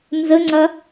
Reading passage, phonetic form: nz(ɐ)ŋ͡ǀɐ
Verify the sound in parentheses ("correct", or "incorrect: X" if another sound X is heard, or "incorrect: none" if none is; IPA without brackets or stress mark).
incorrect: ə